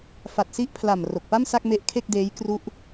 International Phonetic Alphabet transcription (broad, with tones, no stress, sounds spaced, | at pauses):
f a˨˩ t̚ s i˦˥ ʔ pʰ l a˨˩ m r o˨˩ k̚ p a˥˩ m s a˥˩ k̚ m e˦˥ ʔ kʰ e˥˩ k̚ d eː˦˥ j k r u˦˥ ʔ